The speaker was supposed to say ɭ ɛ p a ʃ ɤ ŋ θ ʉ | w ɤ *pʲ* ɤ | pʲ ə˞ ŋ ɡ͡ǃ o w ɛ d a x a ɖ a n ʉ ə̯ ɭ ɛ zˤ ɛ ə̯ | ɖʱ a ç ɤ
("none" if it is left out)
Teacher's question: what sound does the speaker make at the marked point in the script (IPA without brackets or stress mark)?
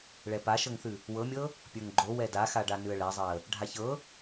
mʲ